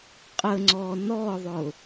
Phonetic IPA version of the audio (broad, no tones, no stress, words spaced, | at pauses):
qʼəŋ͡ǀɔ nɔðˤʊ